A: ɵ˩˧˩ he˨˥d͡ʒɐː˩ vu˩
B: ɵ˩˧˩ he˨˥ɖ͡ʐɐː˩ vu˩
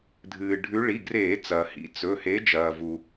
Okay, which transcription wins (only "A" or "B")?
A